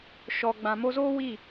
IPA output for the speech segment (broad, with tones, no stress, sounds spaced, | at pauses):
ʃ ɔ˨ ɡ͡b ã˨ m o˧ z oː˦ w i˦˨